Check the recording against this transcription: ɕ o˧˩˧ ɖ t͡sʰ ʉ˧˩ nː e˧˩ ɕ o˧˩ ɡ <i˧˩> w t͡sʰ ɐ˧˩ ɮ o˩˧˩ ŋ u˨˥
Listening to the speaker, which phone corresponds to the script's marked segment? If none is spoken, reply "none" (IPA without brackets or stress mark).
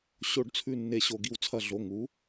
i˧˩